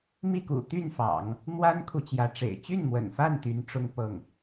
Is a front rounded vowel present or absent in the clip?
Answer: present